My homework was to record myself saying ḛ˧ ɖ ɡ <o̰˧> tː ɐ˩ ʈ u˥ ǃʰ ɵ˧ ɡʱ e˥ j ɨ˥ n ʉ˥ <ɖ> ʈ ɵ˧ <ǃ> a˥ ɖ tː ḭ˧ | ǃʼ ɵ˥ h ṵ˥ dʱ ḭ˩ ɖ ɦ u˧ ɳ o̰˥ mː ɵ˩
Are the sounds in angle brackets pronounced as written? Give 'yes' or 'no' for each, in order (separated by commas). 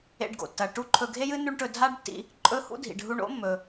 no, no, no